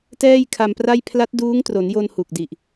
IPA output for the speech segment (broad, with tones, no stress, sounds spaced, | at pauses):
t ɛː˥˩ j kʰ a˧ m p r a˥˩ j pʰ l a˦˥ t̚ d uː˦˥ ŋ t r o˩˦ n j o˧ n h u˨˩ k̚ d i˨˩ ʔ